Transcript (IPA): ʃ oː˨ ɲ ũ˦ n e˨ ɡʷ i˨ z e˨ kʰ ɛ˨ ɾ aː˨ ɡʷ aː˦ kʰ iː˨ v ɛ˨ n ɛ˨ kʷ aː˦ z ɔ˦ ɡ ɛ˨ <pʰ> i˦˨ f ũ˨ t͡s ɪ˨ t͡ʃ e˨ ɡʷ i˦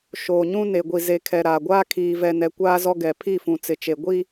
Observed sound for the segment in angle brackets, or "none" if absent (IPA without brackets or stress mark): pʰ